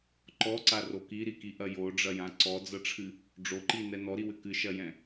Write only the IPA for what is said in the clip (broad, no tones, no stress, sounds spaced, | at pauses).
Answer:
ǃ ɔ ǀ a r o k i ɾ i k i ʔ ɐ j o ɖ͡ʐ ɐ j ã ǀ ɔ d͡z ɐ ʈ͡ʂʰ ɨ | ɖ͡ʐ o ǃ i n ɛ n ɔ ɾ i w ɘ k ɨ ʃ ɐ j ɛ̃